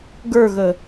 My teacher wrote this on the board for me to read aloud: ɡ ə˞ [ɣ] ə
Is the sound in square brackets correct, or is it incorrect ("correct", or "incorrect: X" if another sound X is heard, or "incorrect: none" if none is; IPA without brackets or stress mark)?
correct